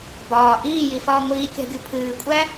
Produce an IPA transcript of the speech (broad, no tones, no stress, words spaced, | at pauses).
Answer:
bɒː ʔiːjifɒː ŋʷiːkʲa̤ɡʲu pʰɨːkʷʼæ